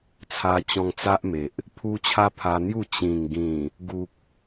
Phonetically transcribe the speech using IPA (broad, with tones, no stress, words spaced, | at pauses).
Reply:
t͡sʰa˧t͡ɕɔ̃˧ŋt͡sa˦ʔme˨ʔ | pʰu˧ t͡ɕʰa˦pʰa˧n̪ju˥˧ t͡ɕĩ˨˩ŋ ɡĩ˨˩ | ɡu˨k̚